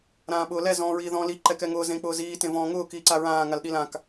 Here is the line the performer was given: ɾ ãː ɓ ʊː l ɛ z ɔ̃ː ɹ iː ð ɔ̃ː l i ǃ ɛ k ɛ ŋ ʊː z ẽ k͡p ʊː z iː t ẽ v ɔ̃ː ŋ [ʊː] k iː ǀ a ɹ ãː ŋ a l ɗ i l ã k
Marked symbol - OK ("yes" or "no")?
yes